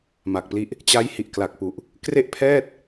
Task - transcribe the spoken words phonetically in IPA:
m a˨˩ k̚ p l i˦˥ ʔ | t͡ɕ a˦˥ j h i˨˩ ʔ k l a˨˩ k̚ p u˨˩ ʔ | k r e˥˩ ʔ pʰ ɛː˥˩ t̚

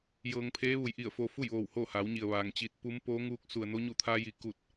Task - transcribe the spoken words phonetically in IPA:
j ɤː˧ ŋ pʰ eː˧˥ ʋ u˩˧ j ʔ i˧˩ ə̯ f o˧ f u˥˨ j ʋ oː˧˩ w h oː˥˨ h a˩˧ w ɲ i˩ ə̯ ʋ aː˩ ŋ t͡ɕ i˧ t̚ p u˧˥ m p oː˧˥ ŋ uː˧˥ k̚ s u˩ ə̯ n o˧˥ ɲ u˧˩ t̪ʰ aː˧ j i˧˩ k u˧˩ t̚

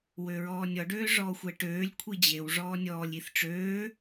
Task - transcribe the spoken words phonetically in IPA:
w ø ɹ ɔː nʲ ɔ ɖ øː ʐ ɔː xʷ ɛ ʈ øː lʲ kʷʰ i d͡ʑ e w ʐ ɔː nʲ ɔː lʲ i θ ʈ͡ʂ øː

